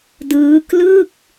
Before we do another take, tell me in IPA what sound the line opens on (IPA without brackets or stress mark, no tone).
d